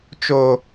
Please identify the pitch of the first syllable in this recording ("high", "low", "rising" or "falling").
high